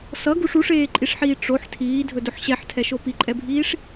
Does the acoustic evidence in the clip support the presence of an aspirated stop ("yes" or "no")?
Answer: yes